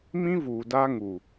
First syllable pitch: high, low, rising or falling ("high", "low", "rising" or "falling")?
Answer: high